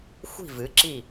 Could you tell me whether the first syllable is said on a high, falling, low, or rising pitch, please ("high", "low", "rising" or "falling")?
falling